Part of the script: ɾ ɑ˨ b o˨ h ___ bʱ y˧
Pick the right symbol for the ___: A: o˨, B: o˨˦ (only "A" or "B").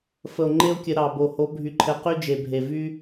B